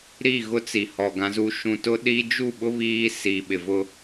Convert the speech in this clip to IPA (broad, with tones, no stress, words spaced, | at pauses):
ɾi˦˨ɣʊ˦t͡si˨hɔ˨ ɡã˦zu˦ ʃũ˨tʊ˦ɗi˦ d͡ʒu˦˨ɓʊ˦ βiː˦si˨ɓɪ˨vʊ˦